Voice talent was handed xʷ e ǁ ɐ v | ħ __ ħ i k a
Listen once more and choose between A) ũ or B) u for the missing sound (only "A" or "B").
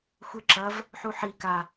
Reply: B